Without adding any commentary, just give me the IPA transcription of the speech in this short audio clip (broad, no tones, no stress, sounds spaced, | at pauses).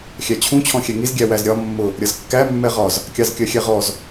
xʲ æ t͡ɕʰ ũ t͡ɕʰ ɔ̃ xʲ ɛ ŋ i z ɡʲ æ w æ z ɾʲ ɒ mː ʊ | ɾʲ ʌ z kː æ mː ɛ ʁ ɒ z | kʲ ɑ z kʲ ɜ xʲ ɛ ʁ ɔ z